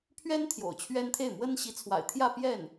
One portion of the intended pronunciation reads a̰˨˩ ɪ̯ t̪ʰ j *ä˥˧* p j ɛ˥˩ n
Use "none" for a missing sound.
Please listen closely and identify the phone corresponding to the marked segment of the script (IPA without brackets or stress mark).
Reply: ä˥˧